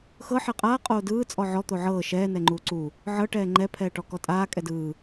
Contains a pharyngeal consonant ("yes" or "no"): yes